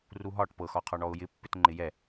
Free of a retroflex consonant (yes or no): no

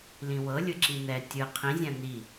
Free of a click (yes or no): no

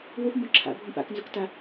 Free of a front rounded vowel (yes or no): no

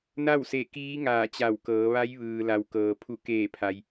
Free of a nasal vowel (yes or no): yes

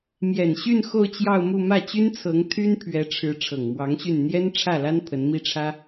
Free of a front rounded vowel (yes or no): no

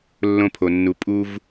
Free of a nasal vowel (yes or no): no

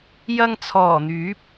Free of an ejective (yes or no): yes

